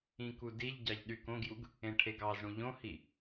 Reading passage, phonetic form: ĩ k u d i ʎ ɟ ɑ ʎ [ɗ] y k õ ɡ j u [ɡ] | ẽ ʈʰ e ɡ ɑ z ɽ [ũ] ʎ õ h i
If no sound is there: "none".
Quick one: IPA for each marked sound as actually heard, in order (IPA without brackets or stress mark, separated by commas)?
ɗ, ɡ, ũ